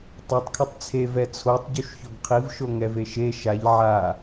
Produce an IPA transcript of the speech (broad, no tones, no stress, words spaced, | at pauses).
tˤatˤkʰʌtˤ t͡sʰe vɛt͡sʰotˤ ɟuʃçoɡqʰiv ʃoŋɛveʃe ʃaʎ ʕa